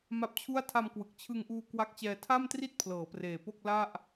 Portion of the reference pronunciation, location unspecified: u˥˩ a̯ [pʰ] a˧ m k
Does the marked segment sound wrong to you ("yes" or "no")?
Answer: yes